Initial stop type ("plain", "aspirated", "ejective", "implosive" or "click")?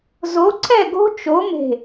click